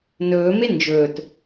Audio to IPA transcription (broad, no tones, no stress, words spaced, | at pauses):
nɵːme nd͡ʒɵːt